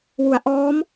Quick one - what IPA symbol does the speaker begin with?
w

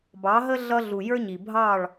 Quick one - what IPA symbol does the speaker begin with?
b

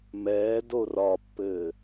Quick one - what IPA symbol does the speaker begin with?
m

